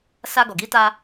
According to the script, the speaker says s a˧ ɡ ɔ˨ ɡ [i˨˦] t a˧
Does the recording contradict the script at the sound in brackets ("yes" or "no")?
no